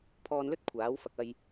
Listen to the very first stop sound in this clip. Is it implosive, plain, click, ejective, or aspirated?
aspirated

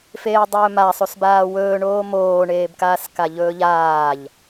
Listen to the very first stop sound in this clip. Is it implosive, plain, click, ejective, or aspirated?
plain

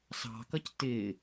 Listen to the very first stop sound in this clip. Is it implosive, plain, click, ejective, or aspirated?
plain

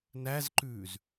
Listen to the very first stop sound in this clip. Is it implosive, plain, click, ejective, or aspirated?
click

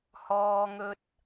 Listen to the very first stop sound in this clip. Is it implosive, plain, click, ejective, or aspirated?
plain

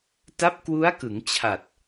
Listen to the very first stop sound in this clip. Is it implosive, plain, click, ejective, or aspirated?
plain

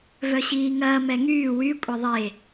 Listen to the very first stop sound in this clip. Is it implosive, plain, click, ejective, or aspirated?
ejective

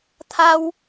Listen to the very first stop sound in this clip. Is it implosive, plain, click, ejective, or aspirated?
aspirated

